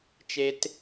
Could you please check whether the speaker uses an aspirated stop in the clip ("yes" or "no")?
no